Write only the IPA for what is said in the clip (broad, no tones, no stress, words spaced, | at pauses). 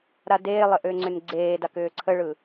ɾadeːlˠə ʔʏːŋ͡ǀʏnɡ͡ǀeːdak ʏːǀʰəɭɯ